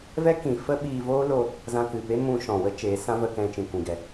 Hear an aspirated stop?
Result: no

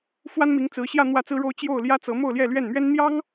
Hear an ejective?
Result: no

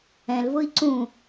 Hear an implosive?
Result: no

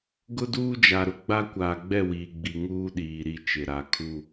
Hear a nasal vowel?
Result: no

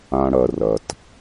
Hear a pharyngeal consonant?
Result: no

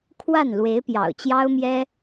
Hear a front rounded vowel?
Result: no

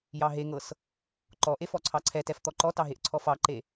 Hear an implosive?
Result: no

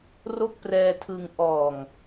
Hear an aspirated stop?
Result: yes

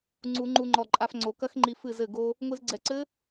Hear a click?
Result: yes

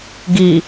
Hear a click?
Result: no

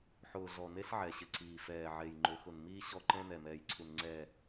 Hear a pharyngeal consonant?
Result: yes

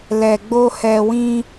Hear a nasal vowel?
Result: yes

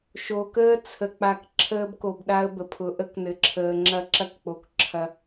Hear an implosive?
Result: yes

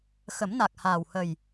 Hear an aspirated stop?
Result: no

